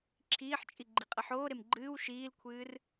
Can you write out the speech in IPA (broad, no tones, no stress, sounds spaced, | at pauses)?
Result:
ǁʰ iː ħ t͡ʃʼ i ɡ͡ǃ i qʼ ɐ ħ oː ɾ e m ɡ͡ǃ ɨː w ʃ iː l kʷʰ ɨː r